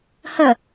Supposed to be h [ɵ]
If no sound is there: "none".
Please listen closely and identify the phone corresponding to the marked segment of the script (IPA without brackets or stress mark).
ə